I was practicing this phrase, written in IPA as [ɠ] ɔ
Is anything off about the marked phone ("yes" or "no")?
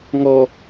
yes